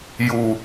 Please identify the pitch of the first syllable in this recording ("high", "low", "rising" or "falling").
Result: low